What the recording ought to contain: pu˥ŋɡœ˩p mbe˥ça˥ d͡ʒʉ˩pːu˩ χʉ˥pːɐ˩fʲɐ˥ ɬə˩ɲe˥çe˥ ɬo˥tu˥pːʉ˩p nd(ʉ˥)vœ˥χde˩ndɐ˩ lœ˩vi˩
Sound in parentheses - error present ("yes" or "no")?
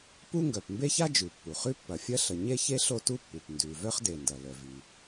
yes